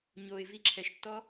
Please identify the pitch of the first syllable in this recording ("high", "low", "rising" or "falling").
low